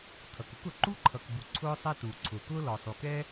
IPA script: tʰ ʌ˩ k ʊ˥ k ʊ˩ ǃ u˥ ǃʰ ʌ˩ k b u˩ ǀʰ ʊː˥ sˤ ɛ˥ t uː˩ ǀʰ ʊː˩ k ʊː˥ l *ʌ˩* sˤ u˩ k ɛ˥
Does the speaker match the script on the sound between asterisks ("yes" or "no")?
no